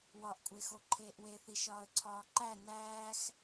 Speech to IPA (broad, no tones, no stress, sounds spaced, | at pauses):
w ɒ ʔ kʷʼ e x o ǃʰ eː ʔ w e θ i ʃ ɒː ə̯ ǀʰ ɒː ǃ æ n æː x